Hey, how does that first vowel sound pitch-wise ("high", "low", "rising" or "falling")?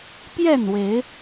falling